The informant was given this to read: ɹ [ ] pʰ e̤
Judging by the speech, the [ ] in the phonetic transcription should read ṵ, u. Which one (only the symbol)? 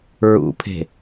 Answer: ṵ